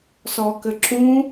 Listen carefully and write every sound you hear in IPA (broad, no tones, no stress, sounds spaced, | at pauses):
s ɔː k ɘ ǁ ũ